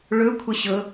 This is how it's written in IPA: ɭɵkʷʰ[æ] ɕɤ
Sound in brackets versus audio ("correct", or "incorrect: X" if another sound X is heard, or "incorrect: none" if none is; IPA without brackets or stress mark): incorrect: ə